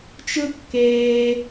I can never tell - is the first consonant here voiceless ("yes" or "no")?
yes